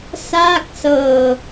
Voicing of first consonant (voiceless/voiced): voiceless